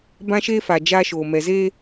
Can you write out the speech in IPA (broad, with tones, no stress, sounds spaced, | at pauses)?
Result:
b ã˦ ʃ eː˦ f a˨ d͡ʒ aː˦ ʃ oː˨ m ɛ˨ z e˦